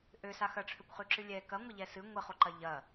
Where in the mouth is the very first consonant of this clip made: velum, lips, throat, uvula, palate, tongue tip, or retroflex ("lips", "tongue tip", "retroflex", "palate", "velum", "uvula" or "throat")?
throat